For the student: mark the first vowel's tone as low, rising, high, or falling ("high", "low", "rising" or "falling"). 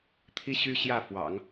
high